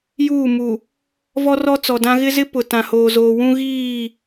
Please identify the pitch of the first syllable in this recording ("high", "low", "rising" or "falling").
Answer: falling